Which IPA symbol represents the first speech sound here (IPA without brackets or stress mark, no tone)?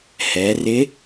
h